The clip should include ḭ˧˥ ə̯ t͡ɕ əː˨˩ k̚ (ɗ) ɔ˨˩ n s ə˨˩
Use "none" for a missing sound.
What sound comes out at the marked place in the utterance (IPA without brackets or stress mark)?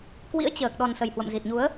ɗ